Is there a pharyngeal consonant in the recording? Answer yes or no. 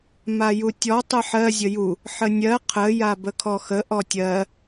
yes